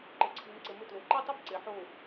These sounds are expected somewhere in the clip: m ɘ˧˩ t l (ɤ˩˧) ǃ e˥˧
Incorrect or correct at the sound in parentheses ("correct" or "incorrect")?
incorrect